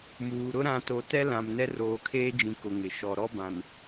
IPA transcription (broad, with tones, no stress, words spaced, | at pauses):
muː˨ɾʊ˦ ɾã˨to˨ tɛ˦lã˨m nɛ˦roː˨kʰeː˦d͡ʒĩ˨ kʊ˨ŋɪ˨ ʃɔ˨ ɾɔ˦bã˨n